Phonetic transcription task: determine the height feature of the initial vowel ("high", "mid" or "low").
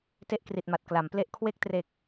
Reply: mid